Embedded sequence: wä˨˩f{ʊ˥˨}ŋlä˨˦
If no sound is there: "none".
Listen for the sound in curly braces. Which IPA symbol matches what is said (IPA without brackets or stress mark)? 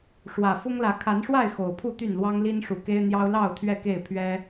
ʊ˦